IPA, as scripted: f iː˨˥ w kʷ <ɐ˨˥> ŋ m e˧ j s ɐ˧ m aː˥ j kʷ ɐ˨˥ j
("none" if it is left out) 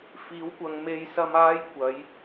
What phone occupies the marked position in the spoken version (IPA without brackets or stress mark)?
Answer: ɐ˨˧